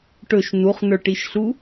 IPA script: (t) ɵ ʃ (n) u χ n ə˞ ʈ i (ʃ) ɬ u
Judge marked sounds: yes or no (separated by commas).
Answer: no, yes, yes